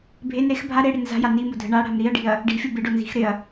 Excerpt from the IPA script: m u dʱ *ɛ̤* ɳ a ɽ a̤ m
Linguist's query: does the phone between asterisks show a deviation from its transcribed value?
yes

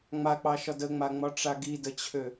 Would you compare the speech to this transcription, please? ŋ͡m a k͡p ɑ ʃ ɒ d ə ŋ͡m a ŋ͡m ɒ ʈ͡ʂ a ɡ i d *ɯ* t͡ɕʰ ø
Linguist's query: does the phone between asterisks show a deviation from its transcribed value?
yes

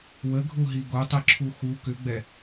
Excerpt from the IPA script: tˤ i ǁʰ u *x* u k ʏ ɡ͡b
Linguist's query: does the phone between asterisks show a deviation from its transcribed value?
no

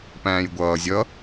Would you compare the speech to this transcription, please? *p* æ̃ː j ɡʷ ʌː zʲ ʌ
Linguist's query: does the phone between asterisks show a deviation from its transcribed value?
no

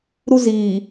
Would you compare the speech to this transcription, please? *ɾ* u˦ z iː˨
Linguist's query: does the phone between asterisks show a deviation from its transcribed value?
no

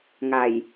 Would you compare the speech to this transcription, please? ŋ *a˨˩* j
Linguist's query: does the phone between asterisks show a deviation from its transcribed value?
no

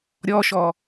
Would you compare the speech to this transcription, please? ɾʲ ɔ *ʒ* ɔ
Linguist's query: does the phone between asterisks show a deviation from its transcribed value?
yes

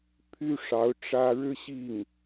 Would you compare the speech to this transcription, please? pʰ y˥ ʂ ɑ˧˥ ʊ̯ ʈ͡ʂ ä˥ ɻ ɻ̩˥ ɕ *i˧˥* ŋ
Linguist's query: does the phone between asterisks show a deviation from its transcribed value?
yes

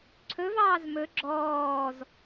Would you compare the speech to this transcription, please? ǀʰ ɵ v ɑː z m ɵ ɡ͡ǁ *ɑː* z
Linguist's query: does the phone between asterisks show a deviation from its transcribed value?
yes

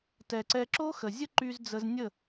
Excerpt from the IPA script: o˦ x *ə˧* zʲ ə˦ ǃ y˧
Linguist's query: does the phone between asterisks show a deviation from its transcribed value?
yes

